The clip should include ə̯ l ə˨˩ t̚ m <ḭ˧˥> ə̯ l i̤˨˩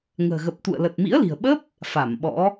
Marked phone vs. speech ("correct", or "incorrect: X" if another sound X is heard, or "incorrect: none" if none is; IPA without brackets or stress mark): correct